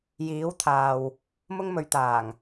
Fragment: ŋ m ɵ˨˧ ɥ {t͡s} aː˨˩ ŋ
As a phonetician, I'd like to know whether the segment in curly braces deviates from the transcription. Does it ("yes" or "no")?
yes